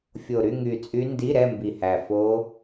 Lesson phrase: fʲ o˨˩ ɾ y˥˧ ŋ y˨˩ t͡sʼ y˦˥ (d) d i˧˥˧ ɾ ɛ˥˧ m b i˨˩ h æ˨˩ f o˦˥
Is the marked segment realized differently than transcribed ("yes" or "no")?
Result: yes